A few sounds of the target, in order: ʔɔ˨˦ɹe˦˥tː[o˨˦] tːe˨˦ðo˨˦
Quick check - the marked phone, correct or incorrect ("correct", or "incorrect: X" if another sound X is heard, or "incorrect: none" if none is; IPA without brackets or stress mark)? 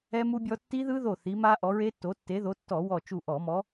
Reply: correct